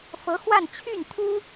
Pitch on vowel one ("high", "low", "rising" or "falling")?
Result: rising